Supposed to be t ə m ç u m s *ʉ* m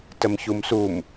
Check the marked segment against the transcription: incorrect: u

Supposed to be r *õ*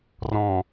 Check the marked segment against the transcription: incorrect: ɔ̃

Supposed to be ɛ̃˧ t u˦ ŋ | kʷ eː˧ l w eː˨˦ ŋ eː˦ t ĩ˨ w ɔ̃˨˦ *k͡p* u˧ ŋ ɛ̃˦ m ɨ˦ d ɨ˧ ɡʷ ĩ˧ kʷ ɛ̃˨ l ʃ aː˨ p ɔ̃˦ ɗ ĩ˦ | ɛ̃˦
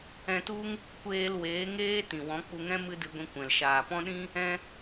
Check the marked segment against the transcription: correct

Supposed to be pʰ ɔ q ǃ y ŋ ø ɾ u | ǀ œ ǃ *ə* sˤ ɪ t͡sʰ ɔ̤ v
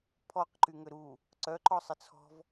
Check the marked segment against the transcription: incorrect: ɔ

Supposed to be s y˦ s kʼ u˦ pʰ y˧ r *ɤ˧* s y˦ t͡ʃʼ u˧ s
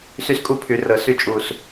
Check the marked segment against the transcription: correct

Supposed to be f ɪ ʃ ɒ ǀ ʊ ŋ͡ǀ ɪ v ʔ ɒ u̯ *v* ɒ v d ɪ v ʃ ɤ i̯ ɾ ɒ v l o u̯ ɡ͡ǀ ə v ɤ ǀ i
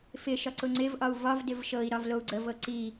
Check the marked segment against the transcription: correct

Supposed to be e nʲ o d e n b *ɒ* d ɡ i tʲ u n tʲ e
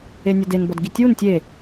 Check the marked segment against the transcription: correct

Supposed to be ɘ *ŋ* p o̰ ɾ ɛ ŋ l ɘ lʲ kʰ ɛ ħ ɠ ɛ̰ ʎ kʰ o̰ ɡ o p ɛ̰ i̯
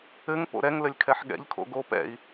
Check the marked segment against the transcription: correct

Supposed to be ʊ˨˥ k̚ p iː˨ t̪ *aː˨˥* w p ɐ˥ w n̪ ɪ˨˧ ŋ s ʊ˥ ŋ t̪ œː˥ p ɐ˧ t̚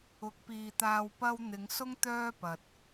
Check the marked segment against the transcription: incorrect: aː˧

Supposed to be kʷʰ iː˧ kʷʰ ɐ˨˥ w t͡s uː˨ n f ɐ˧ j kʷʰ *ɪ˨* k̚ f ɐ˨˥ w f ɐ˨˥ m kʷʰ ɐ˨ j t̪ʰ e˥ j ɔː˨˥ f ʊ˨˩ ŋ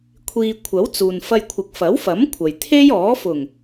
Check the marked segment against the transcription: correct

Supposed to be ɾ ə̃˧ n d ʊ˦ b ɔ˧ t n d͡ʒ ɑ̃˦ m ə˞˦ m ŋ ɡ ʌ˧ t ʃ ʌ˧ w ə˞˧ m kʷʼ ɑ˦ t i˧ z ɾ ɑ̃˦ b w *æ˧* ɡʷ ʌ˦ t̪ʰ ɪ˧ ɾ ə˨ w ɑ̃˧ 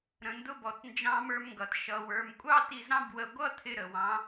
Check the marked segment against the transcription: incorrect: ə˧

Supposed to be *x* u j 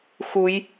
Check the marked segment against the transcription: correct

